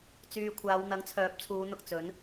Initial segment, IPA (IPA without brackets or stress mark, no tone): t͡s